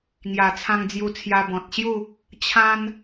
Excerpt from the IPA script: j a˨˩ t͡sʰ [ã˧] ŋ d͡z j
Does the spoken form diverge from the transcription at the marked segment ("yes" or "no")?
no